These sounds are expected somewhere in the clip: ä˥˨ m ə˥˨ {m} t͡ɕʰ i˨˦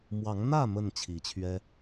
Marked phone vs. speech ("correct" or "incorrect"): incorrect